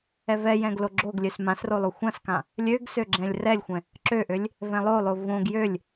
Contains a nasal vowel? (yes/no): yes